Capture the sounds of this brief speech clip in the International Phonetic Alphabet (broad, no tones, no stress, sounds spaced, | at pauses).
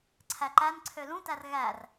ǀʰ æ ǃ æ n ǀʰ ø l ũ t æ r ɣ æ r